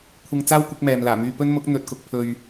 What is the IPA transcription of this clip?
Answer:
kʷʰɪ˧ŋ t͡saː˥wkʷɪ˨˥k̚mɛː˨m laː˨˩myː˧pɵ˥n mʊ˨˥k̚n̪ɵ˨t̚kʊ˨k̚pʰɵ˨ɥ

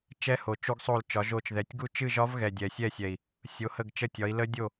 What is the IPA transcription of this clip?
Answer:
t͡ʃɛ˦˥ho˨˩ t͡ʃu˦˥ɡsˤo˥˨lt͡ʃɒ˨˥ʒo˥˨t͡ʃ ðɛ˨˩tʲɡu˥˨ t͡ʃɨ˥˨ʒɒ˦˥vɣɛ˨˩ dʲɛ˨˩sʲɛ˥˨sʲɛ˨˩i̯ | sʲo˨˥hə˥˨ɡt͡ʃə˥˨tʲɒ˨˥i̯ lə˦˥dʲo˥˨

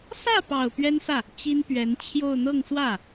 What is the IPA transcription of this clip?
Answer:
sä˥˩pɑ˨˩ʊ̯ pɥɛ˥nsä˥˩ | t͡ɕi˥npɥɛ˧˥n t͡ɕʰjo˥˧ʊ̯ n̪ɤ˥˧ŋswä˥˩

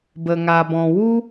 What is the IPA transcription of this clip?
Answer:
bə˨ŋa˨bɔ̃˨ wu˦

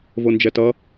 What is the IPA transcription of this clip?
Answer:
vond͡ʒɛtʌ

